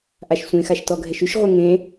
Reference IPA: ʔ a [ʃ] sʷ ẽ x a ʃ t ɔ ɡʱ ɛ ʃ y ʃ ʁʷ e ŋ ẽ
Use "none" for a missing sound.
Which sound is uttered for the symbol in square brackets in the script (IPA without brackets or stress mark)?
ʃ